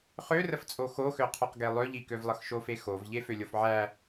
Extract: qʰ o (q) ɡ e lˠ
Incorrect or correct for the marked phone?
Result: correct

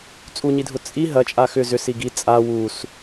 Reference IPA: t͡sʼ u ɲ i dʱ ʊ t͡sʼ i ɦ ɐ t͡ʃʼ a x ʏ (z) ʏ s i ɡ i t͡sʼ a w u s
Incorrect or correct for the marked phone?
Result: correct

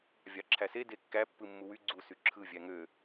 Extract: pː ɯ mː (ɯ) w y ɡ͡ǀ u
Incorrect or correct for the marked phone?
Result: incorrect: u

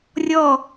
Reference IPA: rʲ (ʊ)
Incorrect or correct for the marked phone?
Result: incorrect: ɔ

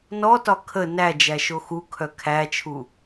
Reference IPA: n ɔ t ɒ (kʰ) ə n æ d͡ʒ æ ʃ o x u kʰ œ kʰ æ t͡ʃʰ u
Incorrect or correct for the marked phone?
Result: correct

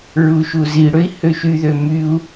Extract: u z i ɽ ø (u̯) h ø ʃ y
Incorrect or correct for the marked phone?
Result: incorrect: i̯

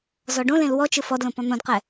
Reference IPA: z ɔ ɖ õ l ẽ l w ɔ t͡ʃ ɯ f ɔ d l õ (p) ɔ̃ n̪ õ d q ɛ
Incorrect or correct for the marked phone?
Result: correct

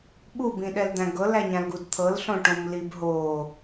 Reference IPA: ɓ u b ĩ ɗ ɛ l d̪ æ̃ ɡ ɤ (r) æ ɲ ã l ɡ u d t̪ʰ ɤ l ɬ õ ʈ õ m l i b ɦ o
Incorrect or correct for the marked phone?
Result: incorrect: l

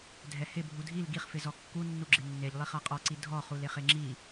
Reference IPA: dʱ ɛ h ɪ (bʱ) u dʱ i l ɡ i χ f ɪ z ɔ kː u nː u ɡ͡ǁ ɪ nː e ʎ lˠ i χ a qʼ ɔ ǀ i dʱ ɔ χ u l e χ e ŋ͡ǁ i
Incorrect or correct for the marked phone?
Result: correct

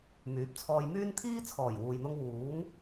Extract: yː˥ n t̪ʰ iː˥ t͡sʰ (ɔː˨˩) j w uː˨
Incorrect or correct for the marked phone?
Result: correct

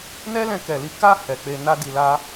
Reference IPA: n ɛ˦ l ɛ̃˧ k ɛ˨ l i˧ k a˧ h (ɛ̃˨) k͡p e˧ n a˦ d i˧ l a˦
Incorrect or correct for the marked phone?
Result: incorrect: ɛ˨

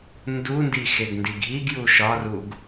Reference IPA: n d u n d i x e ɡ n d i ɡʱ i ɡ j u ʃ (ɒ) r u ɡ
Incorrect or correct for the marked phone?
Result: correct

